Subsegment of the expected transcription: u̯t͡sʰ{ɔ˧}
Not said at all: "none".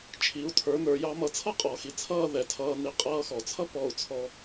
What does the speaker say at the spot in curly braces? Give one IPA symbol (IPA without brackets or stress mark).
ɔ˧